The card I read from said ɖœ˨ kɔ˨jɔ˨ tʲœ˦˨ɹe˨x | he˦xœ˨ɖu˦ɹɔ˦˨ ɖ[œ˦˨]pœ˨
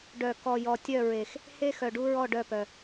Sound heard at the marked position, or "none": œ˦˨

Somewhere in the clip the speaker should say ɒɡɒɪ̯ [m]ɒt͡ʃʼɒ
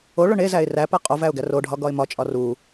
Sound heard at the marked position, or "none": m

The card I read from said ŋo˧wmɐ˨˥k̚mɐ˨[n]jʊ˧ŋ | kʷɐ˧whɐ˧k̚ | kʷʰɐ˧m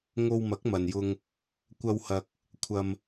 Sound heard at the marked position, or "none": n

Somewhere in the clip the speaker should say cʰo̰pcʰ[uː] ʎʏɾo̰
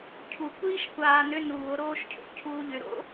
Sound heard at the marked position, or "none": uː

